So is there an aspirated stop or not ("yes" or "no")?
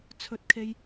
yes